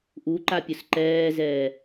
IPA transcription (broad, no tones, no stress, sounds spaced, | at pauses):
ʔ u ǃ a pʲ ʊ s ǃ ɛː z ɛː